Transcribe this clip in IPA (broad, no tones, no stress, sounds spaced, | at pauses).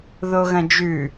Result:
ð o ɣ ɐ̃ d͡ʒ ʉ